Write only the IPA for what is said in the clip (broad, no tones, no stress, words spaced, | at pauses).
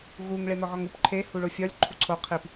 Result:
ɣuŋ ɭenɒɣɒŋup ǃʰe huɭofʲɒlʲ ǃʰuǀʰo qʰip